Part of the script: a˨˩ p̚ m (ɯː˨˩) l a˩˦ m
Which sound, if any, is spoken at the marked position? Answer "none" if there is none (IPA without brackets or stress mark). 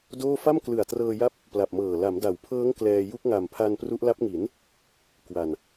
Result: ɤː˨˩